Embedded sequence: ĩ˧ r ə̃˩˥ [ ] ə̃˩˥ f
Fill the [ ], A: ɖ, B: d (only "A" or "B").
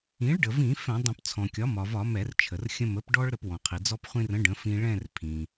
A